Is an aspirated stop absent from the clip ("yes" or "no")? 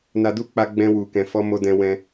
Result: yes